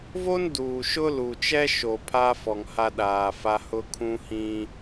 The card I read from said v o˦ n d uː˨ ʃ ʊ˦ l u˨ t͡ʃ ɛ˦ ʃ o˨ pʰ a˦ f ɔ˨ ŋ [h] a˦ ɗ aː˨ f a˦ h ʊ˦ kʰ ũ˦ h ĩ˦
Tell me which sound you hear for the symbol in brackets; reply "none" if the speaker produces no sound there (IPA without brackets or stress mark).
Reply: h